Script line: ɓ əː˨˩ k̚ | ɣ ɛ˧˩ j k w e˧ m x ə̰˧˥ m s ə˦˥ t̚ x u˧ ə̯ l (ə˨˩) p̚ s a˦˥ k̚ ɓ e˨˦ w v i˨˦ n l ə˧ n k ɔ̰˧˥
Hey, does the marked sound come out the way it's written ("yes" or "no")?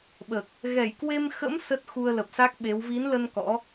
yes